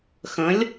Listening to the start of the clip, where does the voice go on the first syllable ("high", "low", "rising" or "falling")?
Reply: rising